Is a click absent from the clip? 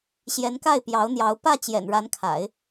yes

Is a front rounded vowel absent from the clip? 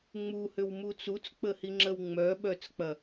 no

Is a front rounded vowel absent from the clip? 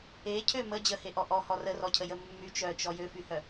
no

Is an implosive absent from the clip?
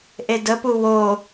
yes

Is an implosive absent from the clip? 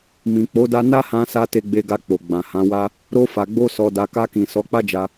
yes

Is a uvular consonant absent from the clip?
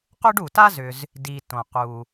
no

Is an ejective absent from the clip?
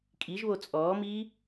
no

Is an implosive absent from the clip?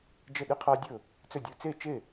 no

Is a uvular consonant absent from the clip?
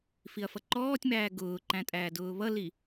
yes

